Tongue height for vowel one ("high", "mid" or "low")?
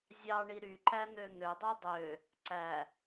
low